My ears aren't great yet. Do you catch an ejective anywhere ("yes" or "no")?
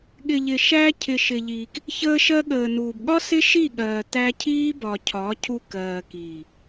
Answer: no